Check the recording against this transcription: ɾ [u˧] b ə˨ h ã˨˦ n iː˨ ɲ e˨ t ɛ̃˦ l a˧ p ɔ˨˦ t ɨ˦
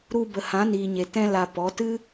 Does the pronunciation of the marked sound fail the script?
no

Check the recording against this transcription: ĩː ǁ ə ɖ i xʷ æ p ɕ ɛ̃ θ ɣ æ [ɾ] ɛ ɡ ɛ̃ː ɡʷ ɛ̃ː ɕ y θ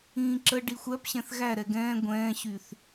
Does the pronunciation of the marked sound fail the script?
no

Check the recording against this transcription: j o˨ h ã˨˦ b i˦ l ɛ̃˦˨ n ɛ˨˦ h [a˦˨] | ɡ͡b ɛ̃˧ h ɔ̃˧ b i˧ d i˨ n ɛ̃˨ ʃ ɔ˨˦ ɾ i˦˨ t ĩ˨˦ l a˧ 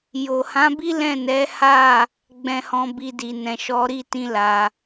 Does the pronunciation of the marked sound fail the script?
no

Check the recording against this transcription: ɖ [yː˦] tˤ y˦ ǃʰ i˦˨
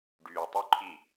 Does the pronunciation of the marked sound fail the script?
yes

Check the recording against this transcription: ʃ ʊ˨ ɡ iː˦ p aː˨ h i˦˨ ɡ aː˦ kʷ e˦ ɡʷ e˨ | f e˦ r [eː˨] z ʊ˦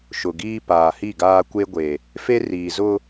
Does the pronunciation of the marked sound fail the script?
yes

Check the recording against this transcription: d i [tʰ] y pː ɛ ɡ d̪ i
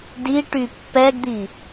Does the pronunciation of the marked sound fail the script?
yes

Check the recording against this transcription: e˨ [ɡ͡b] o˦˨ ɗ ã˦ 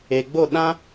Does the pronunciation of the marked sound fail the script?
no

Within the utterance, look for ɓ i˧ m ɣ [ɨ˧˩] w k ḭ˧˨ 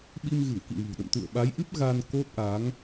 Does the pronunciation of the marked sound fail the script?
no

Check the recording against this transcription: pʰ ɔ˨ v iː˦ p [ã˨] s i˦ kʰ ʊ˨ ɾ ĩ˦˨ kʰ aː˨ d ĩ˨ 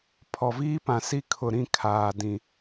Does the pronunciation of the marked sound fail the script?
no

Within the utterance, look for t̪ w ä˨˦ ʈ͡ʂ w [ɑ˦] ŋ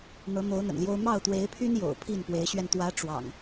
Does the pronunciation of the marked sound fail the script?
yes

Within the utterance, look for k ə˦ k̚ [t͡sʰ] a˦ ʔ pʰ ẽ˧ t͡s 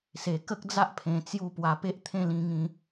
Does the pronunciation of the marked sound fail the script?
yes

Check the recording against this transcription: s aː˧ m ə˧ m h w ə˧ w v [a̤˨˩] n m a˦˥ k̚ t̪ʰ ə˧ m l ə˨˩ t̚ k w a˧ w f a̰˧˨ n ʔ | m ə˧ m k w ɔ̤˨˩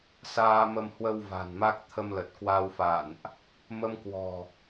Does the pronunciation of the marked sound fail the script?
no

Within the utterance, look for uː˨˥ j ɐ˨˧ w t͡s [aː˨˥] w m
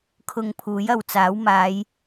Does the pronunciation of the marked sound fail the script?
no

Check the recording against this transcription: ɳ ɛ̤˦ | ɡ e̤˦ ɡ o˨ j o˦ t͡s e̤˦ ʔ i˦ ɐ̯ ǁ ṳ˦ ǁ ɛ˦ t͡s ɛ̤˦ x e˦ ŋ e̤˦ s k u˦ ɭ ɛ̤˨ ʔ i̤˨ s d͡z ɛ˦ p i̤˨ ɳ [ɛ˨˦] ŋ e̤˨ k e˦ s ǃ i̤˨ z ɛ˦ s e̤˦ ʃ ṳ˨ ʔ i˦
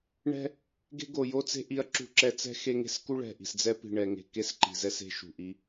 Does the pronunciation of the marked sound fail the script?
yes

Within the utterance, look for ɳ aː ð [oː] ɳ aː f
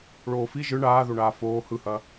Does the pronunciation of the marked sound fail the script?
yes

